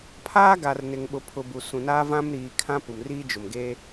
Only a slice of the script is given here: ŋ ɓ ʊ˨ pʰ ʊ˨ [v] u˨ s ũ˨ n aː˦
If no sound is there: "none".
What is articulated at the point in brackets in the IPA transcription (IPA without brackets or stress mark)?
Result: b